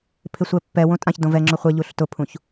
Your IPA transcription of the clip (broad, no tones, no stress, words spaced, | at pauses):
pʰɪsʷɛpːɛ wõtʼãç dõvɛ ŋ͡ǁoχʷɛ ʎuɬtʊpʰũç